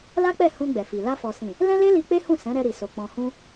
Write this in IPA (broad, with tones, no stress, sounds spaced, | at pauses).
l a˦ k͡p ɛ˦˨ h ũ˧ ɡ͡b ɛ˨ f i˨ l a˧ f ɔ˨ s ĩ˨ | l ɛ̃˦ l e˦ l i˧ k͡p e˦ h ũ˦˨ s ɛ̃˨˦ ɾ ɛ˧ ɾ i˨ s o˨ k͡p ɔ̃˨ h ũ˧